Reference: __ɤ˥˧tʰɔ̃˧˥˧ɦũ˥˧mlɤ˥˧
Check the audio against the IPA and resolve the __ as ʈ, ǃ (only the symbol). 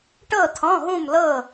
ʈ